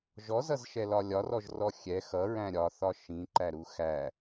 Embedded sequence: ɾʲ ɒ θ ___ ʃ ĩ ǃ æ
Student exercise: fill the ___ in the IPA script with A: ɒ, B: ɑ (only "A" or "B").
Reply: A